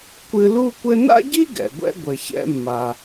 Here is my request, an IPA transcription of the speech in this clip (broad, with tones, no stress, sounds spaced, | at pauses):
kʷ ɨ˧ l u˥ kʷ ɘ˥ n a̰˥ ɟ i˥ ɡ ɛ̰˩ ɡʷ ɛ̰˧ ɡʷ ɘ˩ ç ɛ̰˧ mː a˩